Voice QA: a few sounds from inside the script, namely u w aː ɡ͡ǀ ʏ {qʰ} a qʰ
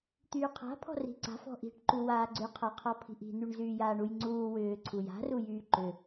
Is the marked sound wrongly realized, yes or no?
no